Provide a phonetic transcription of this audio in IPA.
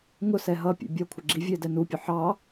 ŋ ʊ s ɛ ɦ ʌ pʲ ɛ̰ bʲ ɒ kʷʰ ɪ ɡ͡ǁ i vʲ ɛ d ɛ n u pʲ ʊ ħ ɑ

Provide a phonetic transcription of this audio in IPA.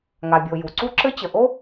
ŋ a˩ bʲ o˩ j u˩ ǀ u˥ ǁ ɘ˥ t͡ɕ ə˩ ʔ o˥

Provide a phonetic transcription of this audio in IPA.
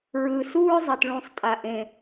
ɹ ɯː˩ s uː˥ ɹ zˤ ɛ˩ t ɭ ũ˨˩˦ sˤ tʼ a˩ ʔ ẽ˩

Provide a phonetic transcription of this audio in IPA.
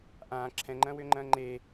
ʔ ãː ǁʰ ɛ̃ ŋ͡ǃ ɐ̃ː w ʏː ŋ͡ǃ ɐ̃ː ŋ͡ǃ e

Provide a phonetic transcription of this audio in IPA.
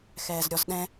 x ɛː z ɾʲ ɔ z ɗ ɛ̃

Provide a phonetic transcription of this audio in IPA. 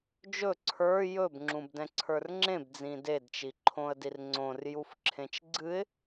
d͡ʒ ɵ ǀʰ ə˞ j ɵ b ŋ͡ǁ ũ b d ɛ̃ ǀʰ ə˞ r ŋ͡ǁ ẽ b d͡z ĩ d e d t͡ʃ i ǃʰ õ ə̯ d i r ŋ͡ǀ õ r j u f ǁʰ ẽ t͡ʃ ɡ͡ǀ ɨ ɪ̯

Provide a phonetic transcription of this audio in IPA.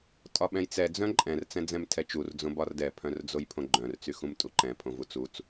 tʼ ɒ ɓ ɛ̃ j t͡s ɛ d͡z œ̃ ǃʼ ɛ̃ r t͡s ɛ̃ d͡z ɛ̃ m tʰ ɛ t͡ʃ u r d͡z õ b ɒ r d ɛ pʰ œ̃ r d͡z o j pʰ õ ɡ͡ǃ œ̃ r t͡s y x ũ m tʼ u ǃ ɛ̃ pʰ õ v u t͡s u t͡s

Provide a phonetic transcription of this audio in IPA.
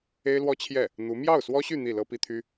e˥ ɪ̯ l w ɔ˥ t͡ɕʰ j ɛ˥˩ | n̪ u˧˥ m j ɑ˥˩ ʊ̯ s w ɔ˥ ɕ y˥˧ n̪ i˥˩ l ɤ˥ p i˥ t̪ʰ y˥

